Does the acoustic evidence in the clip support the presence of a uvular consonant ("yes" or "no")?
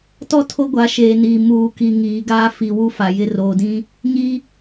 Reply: no